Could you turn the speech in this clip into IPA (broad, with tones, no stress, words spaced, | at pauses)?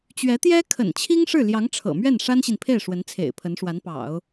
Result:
t͡ɕɥɛ˧˥t̪jɛ˥ kʰə̰˨˩nt͡ɕʰi˥ŋ ʂɻ̩˥˩ ljɑ˧˥ŋʈ͡ʂʰɤ̰˨˩mɥɛ˥˩n ʂa˥nɕi˨npʰe˥˩ɪ̯ ʂwə˧˥nt͡sʰḛ˨˩ɪ̯pʰə˧˥nʂwa˧˥n pɑ̰˨˩˦ʊ̯